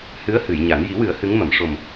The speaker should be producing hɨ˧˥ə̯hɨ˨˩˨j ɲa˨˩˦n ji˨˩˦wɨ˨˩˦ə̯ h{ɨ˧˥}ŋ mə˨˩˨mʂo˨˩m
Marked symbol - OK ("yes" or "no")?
yes